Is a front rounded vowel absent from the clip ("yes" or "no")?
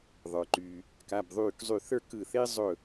no